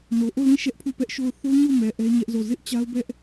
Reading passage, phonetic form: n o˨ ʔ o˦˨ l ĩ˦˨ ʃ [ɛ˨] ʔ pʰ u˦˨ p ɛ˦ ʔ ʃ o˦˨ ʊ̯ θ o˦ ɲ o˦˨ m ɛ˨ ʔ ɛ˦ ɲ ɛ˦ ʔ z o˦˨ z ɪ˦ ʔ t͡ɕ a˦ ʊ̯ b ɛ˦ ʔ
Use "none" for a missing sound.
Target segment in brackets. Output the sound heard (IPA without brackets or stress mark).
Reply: ɛ˦